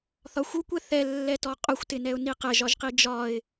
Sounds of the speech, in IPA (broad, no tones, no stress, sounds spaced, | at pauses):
θ ɒ xʷ u kʷ ɛ θ ɛ lː ɛ t ɔ qʼ ʊ xʷ t ɪ n ɛ ʊ̯ n i q ɛ ʒ ɒ ʒ q i d͡ʒ ɒ ɪ̯